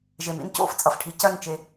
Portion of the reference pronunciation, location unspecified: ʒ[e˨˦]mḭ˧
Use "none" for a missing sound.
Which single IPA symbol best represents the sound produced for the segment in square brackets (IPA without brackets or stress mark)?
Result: e˨